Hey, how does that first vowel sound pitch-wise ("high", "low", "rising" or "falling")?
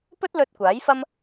high